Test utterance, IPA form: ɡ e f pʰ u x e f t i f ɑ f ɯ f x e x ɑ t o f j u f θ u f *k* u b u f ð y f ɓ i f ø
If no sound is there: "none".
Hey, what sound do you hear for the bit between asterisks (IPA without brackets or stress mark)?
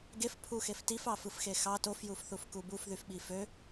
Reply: k